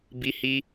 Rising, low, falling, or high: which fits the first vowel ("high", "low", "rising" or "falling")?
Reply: high